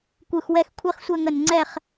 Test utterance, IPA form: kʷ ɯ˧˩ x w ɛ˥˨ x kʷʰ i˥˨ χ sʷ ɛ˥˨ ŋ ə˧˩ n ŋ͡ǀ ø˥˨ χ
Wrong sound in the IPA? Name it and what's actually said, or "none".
ø˥˨ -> ɛ˥˨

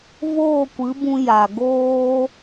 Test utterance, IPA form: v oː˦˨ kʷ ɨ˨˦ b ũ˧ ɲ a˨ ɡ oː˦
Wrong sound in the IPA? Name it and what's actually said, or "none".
ɲ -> j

